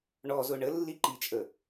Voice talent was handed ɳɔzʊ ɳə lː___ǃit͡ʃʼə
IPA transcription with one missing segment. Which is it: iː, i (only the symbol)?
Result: i